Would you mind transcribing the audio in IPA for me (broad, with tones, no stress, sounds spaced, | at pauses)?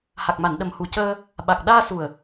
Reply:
h a˨˩ k̚ m a˨˩˨ n ɗ ə˨˩ m h u˨˩ c əː˧ | ɓ a˨˩ k̚ ɗ aː˧ s u˨˩ ə̯